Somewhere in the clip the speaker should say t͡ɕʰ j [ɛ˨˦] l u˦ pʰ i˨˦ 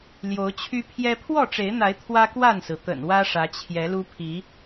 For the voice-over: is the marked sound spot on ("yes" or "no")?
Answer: yes